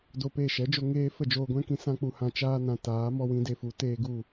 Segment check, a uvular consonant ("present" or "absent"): absent